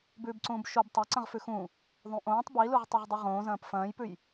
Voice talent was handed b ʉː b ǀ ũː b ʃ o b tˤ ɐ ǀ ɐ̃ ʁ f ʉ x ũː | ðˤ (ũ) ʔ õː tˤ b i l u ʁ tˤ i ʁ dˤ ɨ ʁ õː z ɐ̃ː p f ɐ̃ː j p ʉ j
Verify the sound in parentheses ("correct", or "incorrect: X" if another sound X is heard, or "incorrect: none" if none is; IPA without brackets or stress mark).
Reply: correct